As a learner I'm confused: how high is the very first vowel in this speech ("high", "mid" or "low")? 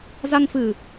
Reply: low